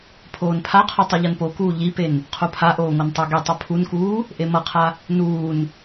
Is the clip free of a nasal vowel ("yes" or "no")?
yes